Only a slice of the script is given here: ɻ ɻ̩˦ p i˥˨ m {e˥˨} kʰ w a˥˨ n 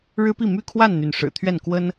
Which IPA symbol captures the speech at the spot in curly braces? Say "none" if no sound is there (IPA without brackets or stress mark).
y˥˨